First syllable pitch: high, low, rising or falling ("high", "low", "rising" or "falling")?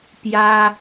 high